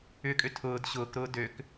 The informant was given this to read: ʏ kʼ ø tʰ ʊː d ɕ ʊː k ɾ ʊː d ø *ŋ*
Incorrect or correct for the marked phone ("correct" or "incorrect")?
incorrect